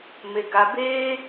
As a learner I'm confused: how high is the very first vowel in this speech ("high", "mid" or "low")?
mid